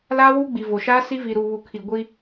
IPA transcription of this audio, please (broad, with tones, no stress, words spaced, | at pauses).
laː˦wuː˦ɡ͡bi˨ vo˨ʃaː˦ si˦ vi˨ɾu˨βu˨kʰi˨ ɡʷi˦